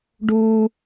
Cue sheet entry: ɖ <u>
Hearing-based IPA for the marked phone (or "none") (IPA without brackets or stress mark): u